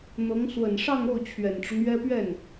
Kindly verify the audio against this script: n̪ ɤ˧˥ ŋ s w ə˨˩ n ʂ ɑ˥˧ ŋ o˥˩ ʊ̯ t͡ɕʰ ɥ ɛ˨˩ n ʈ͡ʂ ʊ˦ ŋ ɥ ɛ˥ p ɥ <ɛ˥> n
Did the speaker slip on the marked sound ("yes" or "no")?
yes